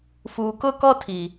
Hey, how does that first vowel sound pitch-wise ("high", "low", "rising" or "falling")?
low